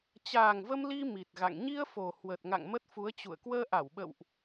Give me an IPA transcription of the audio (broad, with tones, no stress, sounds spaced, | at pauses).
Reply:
t͡ɕ aː˨˩ ŋ v ə˧ m l i˧ m i˨˩ t̚ ɣ a̰˧˨ ŋ ɲ i˧ ə̯ f o˨˩ h w ə˨˩ t̚ ŋ a̰˧˨ ŋ m ə˦˥ t̚ f u˨˦ ə̯ t͡ɕ ṵ˧˨ ə̯ k w əː˧ ʔ a˧˩ w ɓ ə̰˧˨ w ʔ